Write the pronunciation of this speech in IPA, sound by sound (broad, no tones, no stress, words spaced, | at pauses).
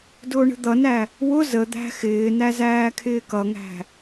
dʊːɳə̤d̪ʌnæ | wʊ zə d̪æ̤xɪːnæ zæːkʰɪːkʌŋæ̤